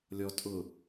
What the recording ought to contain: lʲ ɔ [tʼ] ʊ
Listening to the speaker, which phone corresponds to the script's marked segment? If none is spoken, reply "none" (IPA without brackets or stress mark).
tʼ